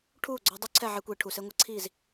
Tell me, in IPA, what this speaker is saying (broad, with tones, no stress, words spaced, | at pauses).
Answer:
ʈʰuː˦˨ɡ͡ǀɔ˧ dˤy˦ǀʰɛ˦˨ʕe˧kʷiː˨ ʈʰu˨se˧ŋʷe˧ǀʰiː˦˨z